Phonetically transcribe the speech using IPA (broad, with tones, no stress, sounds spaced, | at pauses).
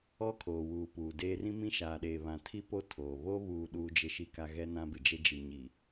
ɔ˦ kʰ oː˨ w uː˨ p uː˨ d eː˦ r ĩ˦ m ĩ˦ ʃ aː˨ ɗ eː˨ β ã˨ tʰ i˦ p o˦ tʰ oː˨ β o˦ β uː˨ ɗ uː˦ d͡ʒ ɪ˦ ʃ i˦ k a˦ ɣ ɛ˦ n ã˦ b ɪ˨ d͡ʒ e˦ d͡ʒ i˨ ɲ i˨